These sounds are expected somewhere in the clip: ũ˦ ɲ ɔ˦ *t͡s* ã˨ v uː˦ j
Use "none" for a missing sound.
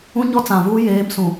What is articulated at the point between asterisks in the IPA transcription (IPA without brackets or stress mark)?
t͡s